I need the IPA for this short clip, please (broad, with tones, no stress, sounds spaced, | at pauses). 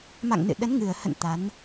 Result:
m a̰˧˨ ŋ n ɨ̰˧˨ ɗ ə˨˦ n ŋ ɨ˨˩ ə̯ h ə̰˧˨ n t̪ a˨˦ n